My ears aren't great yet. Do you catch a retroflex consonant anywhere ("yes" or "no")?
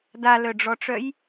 yes